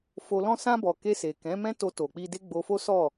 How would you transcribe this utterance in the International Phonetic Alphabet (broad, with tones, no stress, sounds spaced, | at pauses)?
f o˧ l ɔ̃˦ s ã˧ b ɔ˨ k e˧ s e˨ k ɛ̃˨˦ m ɛ̃˦ t o˧ t o˨ k͡p i˧ d e˦ ɡ͡b o˧ f o˦ s ɔ˦˨